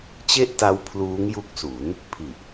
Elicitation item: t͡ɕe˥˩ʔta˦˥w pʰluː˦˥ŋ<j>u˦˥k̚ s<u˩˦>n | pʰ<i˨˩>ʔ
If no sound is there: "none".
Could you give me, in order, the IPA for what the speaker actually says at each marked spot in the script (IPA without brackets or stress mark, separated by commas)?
j, u˩˦, i˨˩